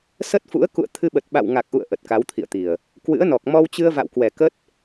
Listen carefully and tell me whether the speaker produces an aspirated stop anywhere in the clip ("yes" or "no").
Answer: yes